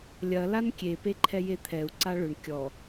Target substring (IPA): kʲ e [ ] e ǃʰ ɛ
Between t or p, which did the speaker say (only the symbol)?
p